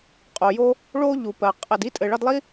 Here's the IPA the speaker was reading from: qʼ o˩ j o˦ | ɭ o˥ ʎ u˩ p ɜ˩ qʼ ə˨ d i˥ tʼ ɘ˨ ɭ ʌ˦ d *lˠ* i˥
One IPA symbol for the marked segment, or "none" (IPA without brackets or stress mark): lˠ